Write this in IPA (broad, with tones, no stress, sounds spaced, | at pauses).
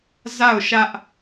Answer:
z a˦˨ ʊ̯ ʃ ä˦ ʔ